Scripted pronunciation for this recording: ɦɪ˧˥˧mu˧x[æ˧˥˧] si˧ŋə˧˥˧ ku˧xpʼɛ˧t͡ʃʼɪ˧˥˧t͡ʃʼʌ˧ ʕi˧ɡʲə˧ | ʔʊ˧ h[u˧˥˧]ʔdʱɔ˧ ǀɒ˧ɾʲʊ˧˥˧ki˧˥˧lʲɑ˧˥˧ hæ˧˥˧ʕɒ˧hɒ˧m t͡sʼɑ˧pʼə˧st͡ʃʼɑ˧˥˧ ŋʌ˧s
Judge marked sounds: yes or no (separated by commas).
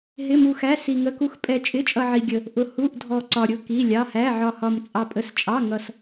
yes, yes